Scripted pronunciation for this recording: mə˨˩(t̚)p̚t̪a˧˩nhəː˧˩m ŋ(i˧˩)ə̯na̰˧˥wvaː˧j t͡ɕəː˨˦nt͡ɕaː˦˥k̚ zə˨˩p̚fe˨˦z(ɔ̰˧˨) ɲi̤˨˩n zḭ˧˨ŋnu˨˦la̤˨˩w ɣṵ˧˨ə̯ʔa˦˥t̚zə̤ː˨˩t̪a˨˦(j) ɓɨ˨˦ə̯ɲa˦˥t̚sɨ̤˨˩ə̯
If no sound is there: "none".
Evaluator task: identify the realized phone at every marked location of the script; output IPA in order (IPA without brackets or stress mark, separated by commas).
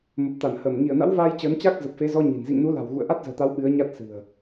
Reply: none, i˧˩, ɔ˧, w